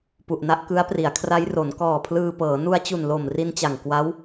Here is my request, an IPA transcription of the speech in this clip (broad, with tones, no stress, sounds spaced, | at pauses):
p u˨˩ ʔ n a˦˥ ʔ k ɯ˦˥ a̯ p r i˩˦ a̯ kʰ r a˦˥ j r o˩˦ n k ɔː˨˩ pʰ l ɯː˧ p ɤː˩˦ n u˧ a̯ t͡ɕ u˨˩ n l o˨˩ m r i˧ n t͡ɕ a˨˩ ŋ k w a˦˥ w